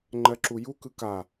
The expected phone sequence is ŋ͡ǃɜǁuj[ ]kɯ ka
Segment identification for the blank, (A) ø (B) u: B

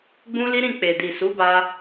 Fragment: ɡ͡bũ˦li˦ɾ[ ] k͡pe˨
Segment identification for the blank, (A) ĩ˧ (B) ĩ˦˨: B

